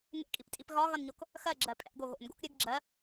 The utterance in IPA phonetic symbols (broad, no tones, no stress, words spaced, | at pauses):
ŋḛkʼiptʼip ɣɒɣʌnɲok | xɜɡ͡ǁɜ pʼɛ̰ɡo ɣo̰nɡo̰k ɾʲɨɡ ɡ͡ǁɜ